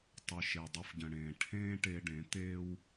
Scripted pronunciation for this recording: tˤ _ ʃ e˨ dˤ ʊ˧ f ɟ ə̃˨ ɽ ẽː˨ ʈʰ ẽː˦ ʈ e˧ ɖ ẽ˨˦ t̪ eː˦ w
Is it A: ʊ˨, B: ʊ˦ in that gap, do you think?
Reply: A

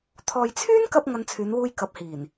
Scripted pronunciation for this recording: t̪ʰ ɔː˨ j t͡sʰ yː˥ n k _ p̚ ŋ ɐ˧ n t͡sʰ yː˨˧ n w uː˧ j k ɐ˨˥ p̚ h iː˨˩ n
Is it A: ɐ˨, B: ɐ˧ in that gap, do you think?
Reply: B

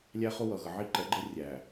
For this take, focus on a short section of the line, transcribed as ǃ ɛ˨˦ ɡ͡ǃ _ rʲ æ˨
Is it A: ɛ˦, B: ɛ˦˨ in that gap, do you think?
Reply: A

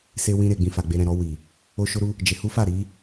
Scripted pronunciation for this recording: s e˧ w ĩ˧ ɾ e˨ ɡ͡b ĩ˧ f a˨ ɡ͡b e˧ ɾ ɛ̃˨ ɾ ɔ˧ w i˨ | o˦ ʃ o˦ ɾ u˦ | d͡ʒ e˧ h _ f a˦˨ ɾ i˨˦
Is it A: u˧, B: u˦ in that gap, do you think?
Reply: B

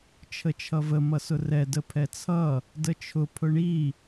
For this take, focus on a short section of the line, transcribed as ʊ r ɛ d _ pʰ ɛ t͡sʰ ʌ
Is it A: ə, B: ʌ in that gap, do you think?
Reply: A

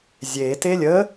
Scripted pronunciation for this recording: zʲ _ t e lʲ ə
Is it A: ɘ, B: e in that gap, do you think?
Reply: B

